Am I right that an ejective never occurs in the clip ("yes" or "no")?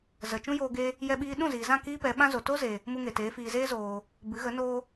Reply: yes